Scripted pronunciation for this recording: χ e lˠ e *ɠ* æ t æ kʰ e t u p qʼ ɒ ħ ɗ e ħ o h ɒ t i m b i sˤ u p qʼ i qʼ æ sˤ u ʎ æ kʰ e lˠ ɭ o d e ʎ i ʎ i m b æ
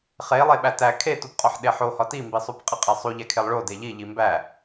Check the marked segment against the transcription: incorrect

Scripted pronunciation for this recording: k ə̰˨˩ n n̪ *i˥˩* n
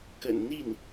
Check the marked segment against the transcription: correct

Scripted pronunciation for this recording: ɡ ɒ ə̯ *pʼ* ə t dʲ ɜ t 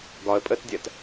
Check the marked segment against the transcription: correct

